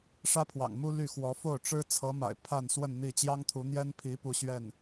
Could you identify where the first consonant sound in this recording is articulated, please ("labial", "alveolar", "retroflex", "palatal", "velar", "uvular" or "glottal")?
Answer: retroflex